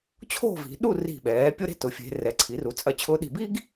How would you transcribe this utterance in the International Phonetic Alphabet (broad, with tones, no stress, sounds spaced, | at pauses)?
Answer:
t͡ɕʰ o̤˥˧ v i̤˩˧ ɗ u˥˧ r i̤˧˩ ɓ ɛː˩˧ pʲ ʊ˥ ɾ e̤˥˧ t ʊ˩˧ fʲ e̤˩˧ r ɛ˩˧ ǀʰ i˩˧ r u˩˧ t͡sʼ ɐ˧˩ t͡ɕʰ ʊː˧ ɗ i̤˧˩ b i˥ ɡ